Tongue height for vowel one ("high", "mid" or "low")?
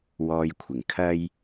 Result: mid